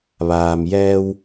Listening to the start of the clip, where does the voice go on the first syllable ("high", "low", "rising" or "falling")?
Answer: low